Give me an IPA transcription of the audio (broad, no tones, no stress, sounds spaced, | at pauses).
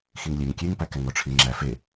x i ŋ lʲ e ŋ kʲ e ŋ p æ k æ ŋ ɔ ʈ͡ʂʰ i ŋ͡ǁ æ f e